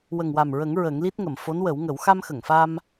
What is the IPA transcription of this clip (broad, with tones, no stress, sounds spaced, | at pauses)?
w ə˨˩ ŋ w a˨˩ m ɹ ə˨˩˦ ŋ ɹ ə˨˩˦ ŋ l i˦˥ t̚ ŋ ə˨˩˨ m f o˧˥ n w ə˨˩˦ w ŋ ə˨˩˦ w x a˧ m x ə˨˩˨ ŋ f a˧ m